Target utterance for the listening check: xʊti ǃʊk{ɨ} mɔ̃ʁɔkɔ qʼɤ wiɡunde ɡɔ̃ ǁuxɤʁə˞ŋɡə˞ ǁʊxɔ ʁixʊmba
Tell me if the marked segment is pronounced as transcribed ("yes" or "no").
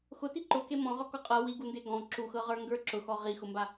no